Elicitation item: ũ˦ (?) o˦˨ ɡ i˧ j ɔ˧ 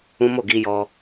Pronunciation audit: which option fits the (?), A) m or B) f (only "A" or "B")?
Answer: A